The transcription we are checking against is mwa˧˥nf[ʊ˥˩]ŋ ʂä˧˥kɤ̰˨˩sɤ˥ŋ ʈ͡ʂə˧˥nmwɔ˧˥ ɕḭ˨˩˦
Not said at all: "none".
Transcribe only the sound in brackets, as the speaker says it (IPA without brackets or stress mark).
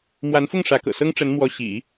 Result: ʊ˥˩